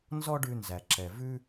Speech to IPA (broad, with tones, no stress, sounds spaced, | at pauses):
n z ɔ˥ ɖ ʉ˧ n z æ˩ ǁ ɛ˩ v ʉ˥